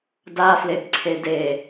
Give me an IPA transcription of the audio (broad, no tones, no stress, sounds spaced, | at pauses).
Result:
d a f l e b ǀʰ e d e